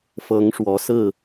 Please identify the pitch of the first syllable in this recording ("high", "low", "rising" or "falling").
rising